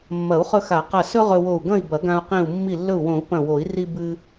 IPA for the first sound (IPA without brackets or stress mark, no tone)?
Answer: mː